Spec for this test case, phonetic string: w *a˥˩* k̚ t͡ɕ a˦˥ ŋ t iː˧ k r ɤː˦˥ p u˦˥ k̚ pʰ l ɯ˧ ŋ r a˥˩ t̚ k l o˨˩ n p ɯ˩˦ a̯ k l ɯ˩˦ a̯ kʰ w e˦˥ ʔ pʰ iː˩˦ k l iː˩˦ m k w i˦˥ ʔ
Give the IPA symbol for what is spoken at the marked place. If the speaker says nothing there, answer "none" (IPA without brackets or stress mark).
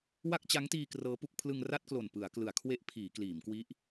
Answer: a˥˩